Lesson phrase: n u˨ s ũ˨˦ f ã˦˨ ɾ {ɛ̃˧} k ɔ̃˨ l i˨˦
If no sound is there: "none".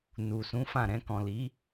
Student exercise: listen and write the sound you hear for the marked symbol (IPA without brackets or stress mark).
ɛ̃˧